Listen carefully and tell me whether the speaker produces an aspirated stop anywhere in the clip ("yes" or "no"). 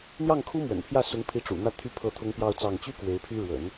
yes